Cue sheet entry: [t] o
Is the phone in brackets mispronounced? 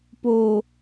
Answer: yes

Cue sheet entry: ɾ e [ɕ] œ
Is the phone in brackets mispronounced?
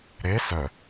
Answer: yes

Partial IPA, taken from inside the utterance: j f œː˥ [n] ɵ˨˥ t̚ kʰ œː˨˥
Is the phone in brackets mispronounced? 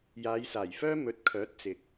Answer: yes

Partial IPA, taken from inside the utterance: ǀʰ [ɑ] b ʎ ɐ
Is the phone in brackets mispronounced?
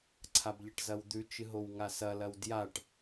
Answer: yes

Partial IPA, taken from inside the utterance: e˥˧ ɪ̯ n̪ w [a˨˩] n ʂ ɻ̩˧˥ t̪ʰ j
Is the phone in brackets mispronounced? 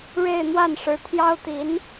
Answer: yes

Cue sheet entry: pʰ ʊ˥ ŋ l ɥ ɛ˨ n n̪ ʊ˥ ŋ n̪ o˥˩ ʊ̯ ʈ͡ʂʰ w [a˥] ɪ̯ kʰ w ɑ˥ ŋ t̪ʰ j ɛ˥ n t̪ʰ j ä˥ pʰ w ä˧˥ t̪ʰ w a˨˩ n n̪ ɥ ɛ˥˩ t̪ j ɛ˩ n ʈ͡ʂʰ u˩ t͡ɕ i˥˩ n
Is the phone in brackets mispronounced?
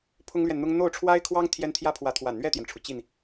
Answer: no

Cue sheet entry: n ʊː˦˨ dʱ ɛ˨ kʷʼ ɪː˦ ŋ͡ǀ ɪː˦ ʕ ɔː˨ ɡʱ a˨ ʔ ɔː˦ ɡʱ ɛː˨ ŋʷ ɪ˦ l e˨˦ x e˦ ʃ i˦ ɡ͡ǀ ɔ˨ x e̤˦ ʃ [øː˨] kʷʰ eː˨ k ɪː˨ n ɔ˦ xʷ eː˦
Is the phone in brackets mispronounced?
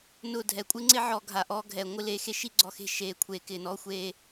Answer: yes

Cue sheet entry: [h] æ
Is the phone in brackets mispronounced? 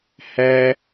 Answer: no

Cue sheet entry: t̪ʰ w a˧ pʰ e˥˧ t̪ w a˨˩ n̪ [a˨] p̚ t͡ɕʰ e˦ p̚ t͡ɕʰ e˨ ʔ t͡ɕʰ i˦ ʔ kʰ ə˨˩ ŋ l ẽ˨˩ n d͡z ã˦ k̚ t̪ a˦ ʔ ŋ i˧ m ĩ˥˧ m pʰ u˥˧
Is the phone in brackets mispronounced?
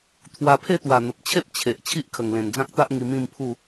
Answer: yes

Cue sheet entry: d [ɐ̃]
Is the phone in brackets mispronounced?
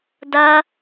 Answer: yes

